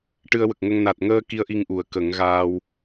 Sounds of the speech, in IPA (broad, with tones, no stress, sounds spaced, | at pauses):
ʈ ɨ˧ ə̯ w ə˨˩ k̚ ŋ ə˧ ŋ n a˨˩ t̚ ŋ əː˧ k i˧˥ ə̯ ʔ i˧ ŋ ʔ u˨˩˦ ə̯ k ə˨˩˦ ŋ ɣ aː˧ w